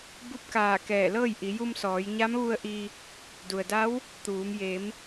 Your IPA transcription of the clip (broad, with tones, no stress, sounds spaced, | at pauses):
b u˧˥ p̚ k aː˧˩ k ɛː˧˩ l ɤː˥˨ j ʔ i˩˧ j u˧ m s ɔː˩˧ j ɲ a˧˥ m ʋ u˧ ə̯ ʔ i˧ | d u˩ ə̯ d a˧˥ w | t̪ uː˩˧ m j e˩˧ m